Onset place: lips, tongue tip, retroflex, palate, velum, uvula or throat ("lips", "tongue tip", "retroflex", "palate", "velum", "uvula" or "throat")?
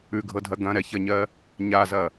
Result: velum